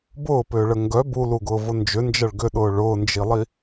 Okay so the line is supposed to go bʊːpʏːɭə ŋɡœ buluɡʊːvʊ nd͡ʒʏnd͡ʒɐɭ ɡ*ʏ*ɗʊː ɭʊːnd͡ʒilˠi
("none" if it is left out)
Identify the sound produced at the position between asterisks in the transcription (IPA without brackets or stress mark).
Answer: ʏ